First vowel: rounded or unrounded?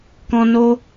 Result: rounded